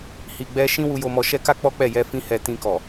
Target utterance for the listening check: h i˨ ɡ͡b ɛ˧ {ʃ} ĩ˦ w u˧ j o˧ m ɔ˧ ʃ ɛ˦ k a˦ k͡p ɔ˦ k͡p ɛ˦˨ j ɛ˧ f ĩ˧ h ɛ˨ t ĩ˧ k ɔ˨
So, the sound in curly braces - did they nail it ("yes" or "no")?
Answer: yes